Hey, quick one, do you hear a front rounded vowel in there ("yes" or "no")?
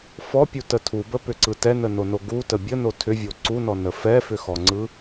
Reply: yes